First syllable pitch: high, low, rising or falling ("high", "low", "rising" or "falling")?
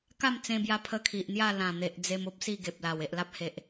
falling